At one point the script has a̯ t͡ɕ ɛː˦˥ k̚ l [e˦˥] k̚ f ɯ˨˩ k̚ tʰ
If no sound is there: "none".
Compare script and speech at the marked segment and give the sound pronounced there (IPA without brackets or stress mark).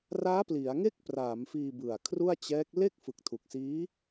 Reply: e˥˩